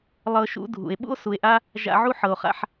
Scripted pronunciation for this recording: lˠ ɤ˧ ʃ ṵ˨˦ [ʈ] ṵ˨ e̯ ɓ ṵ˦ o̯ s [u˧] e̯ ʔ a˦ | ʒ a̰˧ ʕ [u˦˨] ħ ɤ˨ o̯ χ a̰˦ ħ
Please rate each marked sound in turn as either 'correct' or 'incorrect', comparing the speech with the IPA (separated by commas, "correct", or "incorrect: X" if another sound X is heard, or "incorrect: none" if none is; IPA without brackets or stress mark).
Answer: incorrect: dʱ, incorrect: u˨, incorrect: u˦